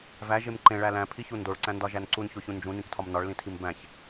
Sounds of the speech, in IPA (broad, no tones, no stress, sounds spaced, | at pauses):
v æ ʒ e m ǃ ẽ ɭ æ l æ̃ pʰ i ç u n d o ɭ ǀ æ̃ n d ɒ ʒ æ n ǀ u n ç o ç ũ n d͡ʒ ũ n ĩ k tʰ ɒ m n ɒ ɭ l ĩ tʰ i m b æ̃ ç